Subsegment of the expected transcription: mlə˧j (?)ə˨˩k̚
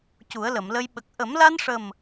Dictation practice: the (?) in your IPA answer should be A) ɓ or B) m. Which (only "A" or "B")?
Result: A